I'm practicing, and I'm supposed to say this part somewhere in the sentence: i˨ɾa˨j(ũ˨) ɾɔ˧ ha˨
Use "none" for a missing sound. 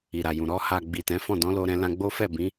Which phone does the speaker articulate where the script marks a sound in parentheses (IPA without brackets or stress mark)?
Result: ũ˨